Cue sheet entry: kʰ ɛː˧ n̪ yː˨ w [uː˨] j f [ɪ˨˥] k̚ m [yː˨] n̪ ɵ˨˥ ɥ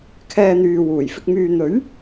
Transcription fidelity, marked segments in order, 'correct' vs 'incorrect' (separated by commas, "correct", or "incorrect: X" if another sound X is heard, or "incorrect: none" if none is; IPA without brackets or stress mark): incorrect: uː˨˩, incorrect: ɪ˧, correct